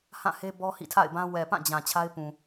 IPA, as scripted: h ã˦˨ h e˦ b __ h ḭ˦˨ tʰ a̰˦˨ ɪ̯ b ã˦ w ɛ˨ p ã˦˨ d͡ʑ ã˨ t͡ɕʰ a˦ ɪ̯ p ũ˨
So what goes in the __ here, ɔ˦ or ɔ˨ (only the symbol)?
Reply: ɔ˦